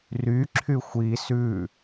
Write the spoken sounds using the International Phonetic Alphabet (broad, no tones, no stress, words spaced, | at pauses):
ry ǁʰyxʷi sʉ